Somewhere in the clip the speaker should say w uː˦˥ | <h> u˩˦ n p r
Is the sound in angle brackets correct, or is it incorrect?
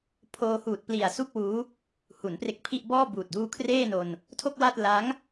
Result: correct